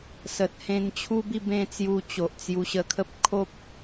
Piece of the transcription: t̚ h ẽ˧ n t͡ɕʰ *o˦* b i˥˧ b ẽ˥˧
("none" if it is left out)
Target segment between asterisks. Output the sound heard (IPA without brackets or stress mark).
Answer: u˦